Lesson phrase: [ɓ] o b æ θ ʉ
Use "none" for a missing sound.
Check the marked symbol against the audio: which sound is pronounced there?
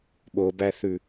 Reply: ɓ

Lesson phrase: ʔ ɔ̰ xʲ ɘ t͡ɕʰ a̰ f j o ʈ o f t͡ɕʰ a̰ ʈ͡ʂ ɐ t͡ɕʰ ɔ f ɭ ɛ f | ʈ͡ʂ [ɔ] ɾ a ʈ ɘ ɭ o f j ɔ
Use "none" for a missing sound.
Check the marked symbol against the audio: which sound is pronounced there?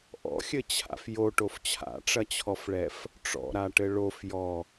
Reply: ɔ̰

